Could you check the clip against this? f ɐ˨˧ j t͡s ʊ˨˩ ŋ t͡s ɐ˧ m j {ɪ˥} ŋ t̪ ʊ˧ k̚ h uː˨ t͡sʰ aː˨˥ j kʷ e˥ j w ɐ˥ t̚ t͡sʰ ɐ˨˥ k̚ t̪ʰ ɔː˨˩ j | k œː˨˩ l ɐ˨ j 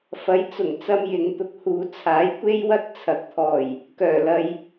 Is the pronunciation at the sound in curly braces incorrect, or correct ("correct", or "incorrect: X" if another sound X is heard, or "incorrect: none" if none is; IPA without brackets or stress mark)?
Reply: incorrect: ɪ˨